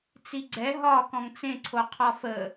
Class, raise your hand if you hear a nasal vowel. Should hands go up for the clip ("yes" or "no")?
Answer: yes